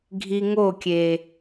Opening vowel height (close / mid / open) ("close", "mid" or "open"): close